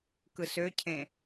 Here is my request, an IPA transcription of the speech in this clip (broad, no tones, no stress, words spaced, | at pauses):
kɯsøcʰẽ